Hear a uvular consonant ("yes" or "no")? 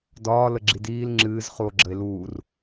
yes